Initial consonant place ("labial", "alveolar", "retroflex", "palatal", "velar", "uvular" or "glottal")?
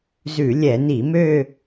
alveolar